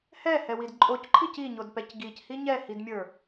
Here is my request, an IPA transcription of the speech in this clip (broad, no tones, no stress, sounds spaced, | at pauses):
h ɛ h ɛ w i d ǃʼ o c ǃʰ i c i ɲ o d p ɛ c ɡ i c h i ɲ ɛ h i d mʲ ə˞